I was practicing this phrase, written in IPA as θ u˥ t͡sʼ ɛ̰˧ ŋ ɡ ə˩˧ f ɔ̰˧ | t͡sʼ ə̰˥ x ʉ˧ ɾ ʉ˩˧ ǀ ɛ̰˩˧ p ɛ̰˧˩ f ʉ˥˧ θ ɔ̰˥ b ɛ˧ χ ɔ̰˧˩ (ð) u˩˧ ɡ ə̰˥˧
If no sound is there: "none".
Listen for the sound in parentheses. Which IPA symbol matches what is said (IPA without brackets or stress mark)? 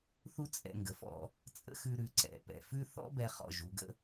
ʒ